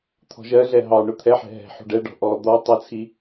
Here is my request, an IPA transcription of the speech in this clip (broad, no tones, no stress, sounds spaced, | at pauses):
t̪ʰ ɔ̤ ʒ ɜ ɮ ɛ ɦ ɑ ɳ ʊ t̪ʰ ɛ ħ ɛ̤ ɦ ɛ̤ ħ ṳ ɖ ɛ ɖ ɔ̤ ʔ ɔ d̪ ɔ tˤ ʌ t͡sʰ i